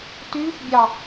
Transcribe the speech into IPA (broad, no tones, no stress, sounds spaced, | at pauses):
t yː f bʲ ɑ